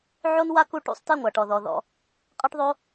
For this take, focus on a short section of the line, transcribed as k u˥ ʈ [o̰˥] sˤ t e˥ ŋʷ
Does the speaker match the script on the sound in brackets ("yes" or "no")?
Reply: no